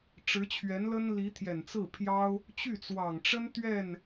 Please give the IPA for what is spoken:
ʈ͡ʂ ɻ̩˧˥ t͡ɕʰ ɥ ɛ˧˥ n l ə˥ n l i˧˥ t̪ʰ j ɛ˨˩ n t͡s ɹ̩˥˩ pʰ j ɑ˥ ʊ̯ | t͡ɕ y˥˩ t͡s w ɑ˨˩ ŋ ʈ͡ʂ ə˥ n t̪ ɥ ɛ˥˩ n

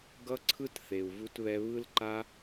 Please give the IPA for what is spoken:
ɡ ʌ˦ ǀʰ ɯ˦ t θ e˨ u̯ v u˧ t β ɛ˧ β ɯ˧ l ǃ a˧

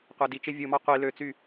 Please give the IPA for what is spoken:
qʷ æ d i t͡ʃ e vʲ ɯ m ɑ qʷ i l ø t͡s y

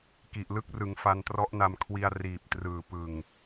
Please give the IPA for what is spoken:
k i˨˩ ʔ l ɯ˥˩ k̚ r ɯ˩˦ ŋ f a˧ n t r ɔ˦˥ ʔ n a˧ m kʰ w i˧ a̯ r iː˨˩ p̚ t r ɯː˨˩ p ɯ˨˩ ŋ

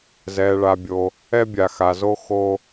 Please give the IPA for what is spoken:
z ɛː˨ ɭ a˨ bʲ o˨ | ɛ˦ bʲ a˨ x a˨ z o˦ x o˦

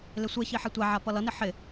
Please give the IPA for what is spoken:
l ɪ sʷ e ç i ħ ɛ tʷ æ ʕ a p ʌ l ʌ n ɪ ħ ɪ

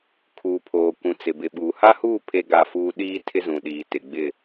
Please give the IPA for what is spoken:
kʰ uː˨ pʰ oː˨ kʷ ũ˨ t͡s ɪ˨ b ɪ˨ ɓ uː˨ h a˦ h uː˦˨ pʰ e˦ ɡ a˦˨ f uː˦ ɗ iː˦ tʰ ɪ˦ z ũ˨ ɗ iː˨ t ɪ˨ ɡ͡b ɪ˦˨

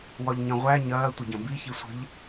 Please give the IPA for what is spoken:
w ɒ ʎ ɲ ɐ̃ ʁʷ æ ɲ ɐː tʷ ə ɟ ɐ̃ b i ç i sʷ ə̤ ʎ

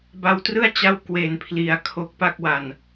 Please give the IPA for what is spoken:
b a˧ w t r ɯ˥˩ a̯ t͡ɕ a˦˥ w k w e˩˦ n pʰ l i˩˦ a̯ kʰ o˦˥ k̚ p a˥˩ k̚ w a˨˩ n

